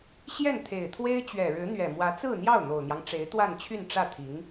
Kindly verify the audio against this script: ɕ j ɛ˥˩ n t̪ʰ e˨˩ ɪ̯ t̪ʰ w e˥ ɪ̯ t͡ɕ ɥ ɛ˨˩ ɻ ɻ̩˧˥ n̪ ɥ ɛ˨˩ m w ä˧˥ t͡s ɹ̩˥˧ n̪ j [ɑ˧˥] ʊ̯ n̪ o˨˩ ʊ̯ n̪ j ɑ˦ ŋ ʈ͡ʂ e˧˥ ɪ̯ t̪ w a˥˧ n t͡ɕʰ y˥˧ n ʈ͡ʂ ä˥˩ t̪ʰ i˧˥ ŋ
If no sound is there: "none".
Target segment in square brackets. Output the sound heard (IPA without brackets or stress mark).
ɑ˥˩